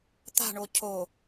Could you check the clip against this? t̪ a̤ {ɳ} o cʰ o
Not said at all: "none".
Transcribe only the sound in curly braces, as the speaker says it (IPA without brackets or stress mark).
ɳ